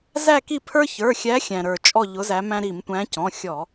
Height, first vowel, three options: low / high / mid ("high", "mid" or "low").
low